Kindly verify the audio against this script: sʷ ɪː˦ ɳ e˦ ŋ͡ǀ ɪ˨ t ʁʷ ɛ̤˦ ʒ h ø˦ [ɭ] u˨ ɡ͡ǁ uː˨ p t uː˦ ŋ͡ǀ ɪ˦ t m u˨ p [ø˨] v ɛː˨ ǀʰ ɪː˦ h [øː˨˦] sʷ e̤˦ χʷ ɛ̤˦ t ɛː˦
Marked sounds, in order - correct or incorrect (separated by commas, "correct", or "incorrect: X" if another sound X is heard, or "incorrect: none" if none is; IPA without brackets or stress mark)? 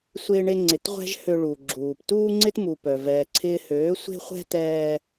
correct, incorrect: œ˨, correct